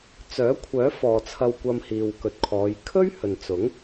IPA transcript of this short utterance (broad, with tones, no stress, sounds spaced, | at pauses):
t͡s œː˨˥ kʷʰ œː˨˥ f ɔː˨ t͡sʰ ɐ˧ w kʷ ɐ˧ m h iː˨ w k ɵ˨ t̚ kʰ ɔː˨˧ j kʰ ɵ˥ ɥ h ɵ˨ n t͡s ʊ˨˥ ŋ